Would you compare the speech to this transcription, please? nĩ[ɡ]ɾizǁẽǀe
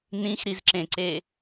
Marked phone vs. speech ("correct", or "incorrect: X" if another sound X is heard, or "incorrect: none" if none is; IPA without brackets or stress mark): incorrect: x